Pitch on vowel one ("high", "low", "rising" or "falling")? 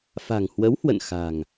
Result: low